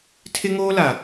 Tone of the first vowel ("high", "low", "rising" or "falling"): high